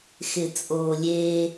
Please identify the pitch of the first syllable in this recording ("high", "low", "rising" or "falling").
low